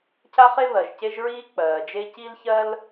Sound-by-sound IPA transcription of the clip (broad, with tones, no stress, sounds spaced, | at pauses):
cʰ a˥ χ e˥ β ɜ˩ ʒ c e˥ ʒ ɹ iː˥ k͡p ɜː˩ d͡ʒ e˥ c i˥ l ç ɜ˥ l